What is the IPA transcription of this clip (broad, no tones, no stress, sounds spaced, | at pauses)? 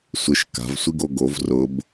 sʷ ɪ ʃ k a̤ v sʷ i ɡ o ɡ o v r ʊ b